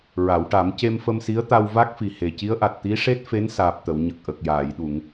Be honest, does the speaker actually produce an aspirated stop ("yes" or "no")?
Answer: no